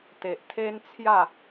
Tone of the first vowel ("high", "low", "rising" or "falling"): low